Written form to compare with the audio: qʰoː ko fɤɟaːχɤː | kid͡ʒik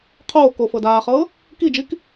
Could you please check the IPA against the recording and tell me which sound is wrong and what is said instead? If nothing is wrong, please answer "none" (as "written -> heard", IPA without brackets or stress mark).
ɟ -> d